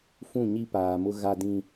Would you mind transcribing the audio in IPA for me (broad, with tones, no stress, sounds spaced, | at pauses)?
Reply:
f ũ˦˨ ɲ i˦ p aː˨ m ʊ˦ ɣ a˦ d ĩ˦